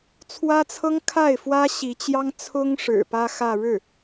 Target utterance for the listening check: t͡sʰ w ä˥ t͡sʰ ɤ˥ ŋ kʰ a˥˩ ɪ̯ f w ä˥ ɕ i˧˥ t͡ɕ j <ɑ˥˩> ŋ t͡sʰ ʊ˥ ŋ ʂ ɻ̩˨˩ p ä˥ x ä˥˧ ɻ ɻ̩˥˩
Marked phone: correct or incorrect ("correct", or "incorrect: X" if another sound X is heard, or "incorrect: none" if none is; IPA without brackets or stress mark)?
incorrect: ɑ˥